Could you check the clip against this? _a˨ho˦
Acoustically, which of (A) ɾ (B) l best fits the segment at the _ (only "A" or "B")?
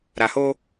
A